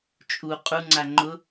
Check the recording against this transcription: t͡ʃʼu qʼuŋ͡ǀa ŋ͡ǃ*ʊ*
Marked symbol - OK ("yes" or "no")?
yes